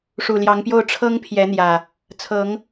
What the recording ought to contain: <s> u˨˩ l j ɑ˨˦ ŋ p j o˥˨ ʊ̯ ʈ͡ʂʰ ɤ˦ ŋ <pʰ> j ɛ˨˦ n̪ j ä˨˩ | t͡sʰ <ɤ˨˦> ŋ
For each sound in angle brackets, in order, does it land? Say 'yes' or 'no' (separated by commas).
no, yes, yes